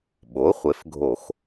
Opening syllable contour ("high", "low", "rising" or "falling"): rising